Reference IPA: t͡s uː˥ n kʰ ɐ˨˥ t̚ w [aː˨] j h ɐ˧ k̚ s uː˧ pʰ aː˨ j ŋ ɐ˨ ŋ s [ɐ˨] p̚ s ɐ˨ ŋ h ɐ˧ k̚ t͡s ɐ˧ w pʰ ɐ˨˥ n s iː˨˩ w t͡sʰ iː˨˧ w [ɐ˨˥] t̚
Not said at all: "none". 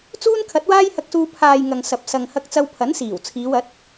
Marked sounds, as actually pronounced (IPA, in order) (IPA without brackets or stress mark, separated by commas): aː˥, ɐ˨, ɐ˨˥